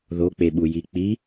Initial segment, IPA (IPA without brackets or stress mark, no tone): ð